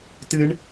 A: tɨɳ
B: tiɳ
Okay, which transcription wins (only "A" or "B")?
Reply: A